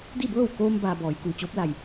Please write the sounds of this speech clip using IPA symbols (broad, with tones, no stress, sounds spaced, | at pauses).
d i˥˨ b ɤː˥˨ w k oː˧ m b aː˧ b ɔː˩˧ j k uː˩ t͡ɕ oː˧˥ p̚ l a˧˩ j